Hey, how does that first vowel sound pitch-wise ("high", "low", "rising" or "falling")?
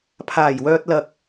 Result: low